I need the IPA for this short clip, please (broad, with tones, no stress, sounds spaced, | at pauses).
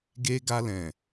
ɡ e˧ ɡ a˧ l ɛ̃˨